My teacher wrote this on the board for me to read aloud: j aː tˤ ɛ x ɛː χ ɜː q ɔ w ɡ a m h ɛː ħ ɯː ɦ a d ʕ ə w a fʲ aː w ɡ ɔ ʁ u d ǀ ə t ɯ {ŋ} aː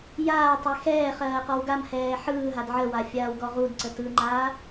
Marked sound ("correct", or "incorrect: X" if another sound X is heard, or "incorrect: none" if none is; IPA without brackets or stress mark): incorrect: ŋ͡ǃ